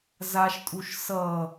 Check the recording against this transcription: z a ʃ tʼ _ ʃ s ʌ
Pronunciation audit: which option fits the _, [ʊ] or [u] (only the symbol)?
u